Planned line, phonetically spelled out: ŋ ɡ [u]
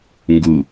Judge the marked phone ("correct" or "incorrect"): correct